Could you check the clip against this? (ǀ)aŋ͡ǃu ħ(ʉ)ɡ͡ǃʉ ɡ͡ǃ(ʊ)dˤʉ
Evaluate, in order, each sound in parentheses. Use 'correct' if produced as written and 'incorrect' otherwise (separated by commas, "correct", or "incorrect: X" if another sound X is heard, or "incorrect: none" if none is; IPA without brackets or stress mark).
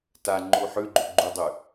incorrect: t, correct, incorrect: u